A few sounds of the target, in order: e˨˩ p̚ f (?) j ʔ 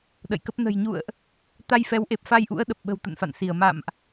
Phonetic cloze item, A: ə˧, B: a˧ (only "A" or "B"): B